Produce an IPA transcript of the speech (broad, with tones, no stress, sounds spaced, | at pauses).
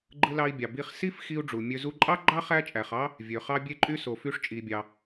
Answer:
ɡ͡ǃ ɯ˧ l ɑ˧ i̯ bʲ ɑ˩ b i˧ χ s i˥ f x i˧ u̯ ɖ͡ʐ u˩ mʲ ø˧ z u˧ ǃʼ ɑ˥ ɡ͡ǃ ɑ˥ χ æ˥ t͡ʃʼ æ˩ χ ɑ˥ | vʲ ø˩ χ ɑ˧ bʲ e˧ ǃʼ y˧ s o˩ f y˧ ʂ t͡ʃʼ i˩ bʲ ɑ˩